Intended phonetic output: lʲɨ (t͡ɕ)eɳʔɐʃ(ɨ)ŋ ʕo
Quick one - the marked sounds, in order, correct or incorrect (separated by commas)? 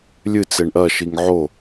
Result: incorrect, incorrect